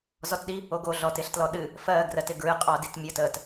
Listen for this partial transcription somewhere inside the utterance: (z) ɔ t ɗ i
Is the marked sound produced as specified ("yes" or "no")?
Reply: yes